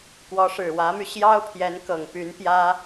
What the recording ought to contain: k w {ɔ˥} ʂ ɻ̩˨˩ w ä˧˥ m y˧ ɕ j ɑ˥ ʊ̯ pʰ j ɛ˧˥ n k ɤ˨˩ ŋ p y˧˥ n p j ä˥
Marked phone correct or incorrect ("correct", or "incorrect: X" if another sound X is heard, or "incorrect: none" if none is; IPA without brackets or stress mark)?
incorrect: ɔ˧˥